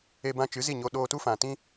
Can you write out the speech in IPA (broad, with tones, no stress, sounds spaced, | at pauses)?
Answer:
e˧ b ã˧ t͡ʃ ɨ˨˦ z i˦˨ ɲ o˧ ɗ oː˧ t u˦ f ã˨ t ĩ˦